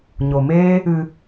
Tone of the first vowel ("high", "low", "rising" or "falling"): low